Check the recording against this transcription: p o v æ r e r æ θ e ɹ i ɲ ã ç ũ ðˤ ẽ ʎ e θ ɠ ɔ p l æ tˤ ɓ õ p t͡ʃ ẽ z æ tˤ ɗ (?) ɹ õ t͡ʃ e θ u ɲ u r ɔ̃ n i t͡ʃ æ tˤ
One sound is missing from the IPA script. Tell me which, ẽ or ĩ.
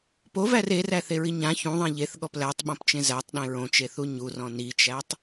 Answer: ẽ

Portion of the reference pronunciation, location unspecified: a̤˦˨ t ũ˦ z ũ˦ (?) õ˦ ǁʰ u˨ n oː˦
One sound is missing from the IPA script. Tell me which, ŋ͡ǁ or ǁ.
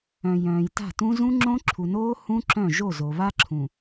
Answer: ŋ͡ǁ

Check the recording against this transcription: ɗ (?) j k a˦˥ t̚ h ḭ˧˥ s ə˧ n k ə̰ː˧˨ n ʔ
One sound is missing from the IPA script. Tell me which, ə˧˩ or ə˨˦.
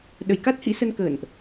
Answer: ə˧˩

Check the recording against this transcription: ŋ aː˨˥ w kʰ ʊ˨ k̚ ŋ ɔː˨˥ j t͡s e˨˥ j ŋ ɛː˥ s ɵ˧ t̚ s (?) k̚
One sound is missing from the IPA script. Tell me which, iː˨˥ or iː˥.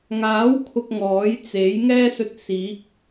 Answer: iː˨˥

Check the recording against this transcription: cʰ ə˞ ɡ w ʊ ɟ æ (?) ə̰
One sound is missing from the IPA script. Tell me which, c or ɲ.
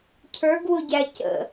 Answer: c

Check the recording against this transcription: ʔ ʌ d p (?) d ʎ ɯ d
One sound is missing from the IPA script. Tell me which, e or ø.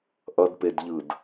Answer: e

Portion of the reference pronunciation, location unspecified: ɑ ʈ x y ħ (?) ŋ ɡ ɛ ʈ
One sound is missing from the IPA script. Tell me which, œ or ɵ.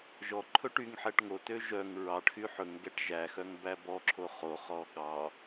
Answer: ɵ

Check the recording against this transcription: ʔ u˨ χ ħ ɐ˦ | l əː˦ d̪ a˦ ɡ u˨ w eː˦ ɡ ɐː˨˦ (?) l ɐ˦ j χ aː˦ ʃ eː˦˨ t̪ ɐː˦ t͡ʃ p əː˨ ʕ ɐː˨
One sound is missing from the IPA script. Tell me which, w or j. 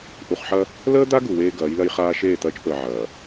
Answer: j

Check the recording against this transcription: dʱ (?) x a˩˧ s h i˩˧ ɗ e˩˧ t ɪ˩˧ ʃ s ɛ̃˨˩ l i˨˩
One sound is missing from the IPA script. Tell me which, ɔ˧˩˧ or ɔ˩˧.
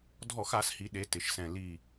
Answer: ɔ˧˩˧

